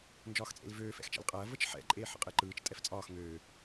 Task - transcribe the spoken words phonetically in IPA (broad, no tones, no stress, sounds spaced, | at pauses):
n d͡ʒ ɒː x t͡sʼ ḛ l v øː f ɛ̰ x t͡ʃ ɛ̰ l qʼ ɐː v ə t͡ʃ ħ ɛ̰ ǃʼ eː ħ ə̰ qʼ e ǃ ɯː t͡ʃ tʼ ɛ f t͡sʼ ɒː x ŋ øː